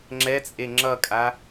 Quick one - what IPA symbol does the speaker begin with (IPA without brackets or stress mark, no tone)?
ŋ͡ǁ